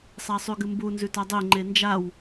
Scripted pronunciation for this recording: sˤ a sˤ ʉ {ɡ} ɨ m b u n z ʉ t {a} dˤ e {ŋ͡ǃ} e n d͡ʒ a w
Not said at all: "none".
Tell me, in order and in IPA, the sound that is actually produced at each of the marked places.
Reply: ɡ, a, ŋ͡ǃ

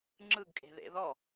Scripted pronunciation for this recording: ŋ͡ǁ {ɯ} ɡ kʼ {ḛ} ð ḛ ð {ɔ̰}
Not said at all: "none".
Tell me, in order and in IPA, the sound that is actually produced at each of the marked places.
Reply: ɯ, e̤, ɔ

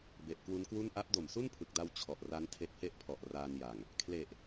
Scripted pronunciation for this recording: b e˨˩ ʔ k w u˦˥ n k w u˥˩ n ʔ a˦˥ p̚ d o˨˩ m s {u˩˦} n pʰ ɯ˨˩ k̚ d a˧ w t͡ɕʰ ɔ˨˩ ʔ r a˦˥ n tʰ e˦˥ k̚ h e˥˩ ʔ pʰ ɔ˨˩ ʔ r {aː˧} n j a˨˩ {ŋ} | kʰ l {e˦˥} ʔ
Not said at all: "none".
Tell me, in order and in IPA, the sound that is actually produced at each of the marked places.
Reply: u˥˩, aː˧, ŋ, e˨˩

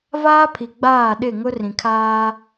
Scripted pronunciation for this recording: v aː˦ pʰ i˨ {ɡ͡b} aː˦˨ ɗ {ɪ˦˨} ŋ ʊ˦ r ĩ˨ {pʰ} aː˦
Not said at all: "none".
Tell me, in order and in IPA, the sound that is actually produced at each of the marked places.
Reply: ɡ͡b, ɪ˦˨, kʰ

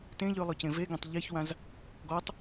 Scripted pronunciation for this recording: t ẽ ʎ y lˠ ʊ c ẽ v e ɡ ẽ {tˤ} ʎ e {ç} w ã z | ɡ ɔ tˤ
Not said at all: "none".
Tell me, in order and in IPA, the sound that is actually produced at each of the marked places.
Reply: tˤ, ç

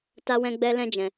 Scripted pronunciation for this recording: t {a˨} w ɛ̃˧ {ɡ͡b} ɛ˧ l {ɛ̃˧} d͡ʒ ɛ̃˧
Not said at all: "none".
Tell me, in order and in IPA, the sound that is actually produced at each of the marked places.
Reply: a˧, ɡ͡b, ɛ̃˦

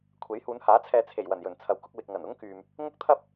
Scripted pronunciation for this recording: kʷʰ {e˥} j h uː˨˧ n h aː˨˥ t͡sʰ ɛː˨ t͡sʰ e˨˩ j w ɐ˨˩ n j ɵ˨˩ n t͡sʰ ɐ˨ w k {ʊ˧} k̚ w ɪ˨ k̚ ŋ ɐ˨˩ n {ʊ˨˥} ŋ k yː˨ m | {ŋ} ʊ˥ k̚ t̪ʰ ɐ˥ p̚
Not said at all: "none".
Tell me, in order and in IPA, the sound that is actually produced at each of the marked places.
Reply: e˨˥, ʊ˧, ʊ˥, ŋ

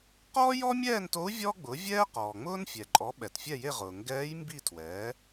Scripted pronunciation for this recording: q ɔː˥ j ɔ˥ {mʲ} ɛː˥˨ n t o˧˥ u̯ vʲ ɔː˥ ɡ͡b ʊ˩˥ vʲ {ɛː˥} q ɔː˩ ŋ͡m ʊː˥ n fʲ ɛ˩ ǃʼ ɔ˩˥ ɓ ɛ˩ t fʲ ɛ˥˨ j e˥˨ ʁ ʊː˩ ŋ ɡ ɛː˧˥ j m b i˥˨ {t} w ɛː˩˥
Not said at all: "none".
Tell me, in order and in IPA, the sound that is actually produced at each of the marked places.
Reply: mʲ, ɛː˥, tʰ

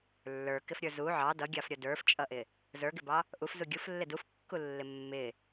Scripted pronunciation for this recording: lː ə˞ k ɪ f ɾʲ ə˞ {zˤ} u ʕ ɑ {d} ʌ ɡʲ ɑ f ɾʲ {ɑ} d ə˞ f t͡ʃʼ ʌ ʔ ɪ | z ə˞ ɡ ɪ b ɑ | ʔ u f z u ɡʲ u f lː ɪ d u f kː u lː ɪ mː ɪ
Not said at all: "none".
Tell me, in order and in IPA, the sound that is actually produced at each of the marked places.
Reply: z, d, ʌ

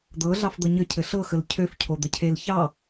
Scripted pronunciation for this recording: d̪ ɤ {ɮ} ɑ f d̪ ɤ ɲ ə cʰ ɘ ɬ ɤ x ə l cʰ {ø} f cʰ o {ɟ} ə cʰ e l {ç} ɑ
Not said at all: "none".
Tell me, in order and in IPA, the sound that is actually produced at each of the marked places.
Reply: ɮ, ø, d̪, ç

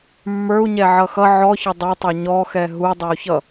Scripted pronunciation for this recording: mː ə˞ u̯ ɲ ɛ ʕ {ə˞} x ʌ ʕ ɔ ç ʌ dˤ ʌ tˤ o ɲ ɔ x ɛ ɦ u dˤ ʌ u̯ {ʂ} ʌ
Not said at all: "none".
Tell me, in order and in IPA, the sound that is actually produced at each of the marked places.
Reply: ʌ, ç

